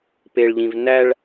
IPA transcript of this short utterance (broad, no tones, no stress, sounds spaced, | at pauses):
p e ɭ ʎ ĩ v n æ ɭ